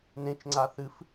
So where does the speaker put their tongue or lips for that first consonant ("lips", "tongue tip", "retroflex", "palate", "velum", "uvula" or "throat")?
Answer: tongue tip